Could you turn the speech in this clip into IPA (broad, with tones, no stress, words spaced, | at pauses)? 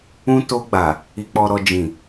ũ˧ to˧ɡ͡ba˨ | i˧k͡pɔ˧ ɾɔ˧ d͡ʒĩ˨